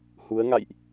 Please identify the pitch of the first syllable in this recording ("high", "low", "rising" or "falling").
rising